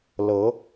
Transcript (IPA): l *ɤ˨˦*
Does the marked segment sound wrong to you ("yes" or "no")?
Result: no